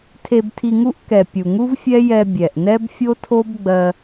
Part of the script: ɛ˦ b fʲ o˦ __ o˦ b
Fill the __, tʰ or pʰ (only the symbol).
tʰ